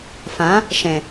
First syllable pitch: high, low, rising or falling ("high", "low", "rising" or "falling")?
rising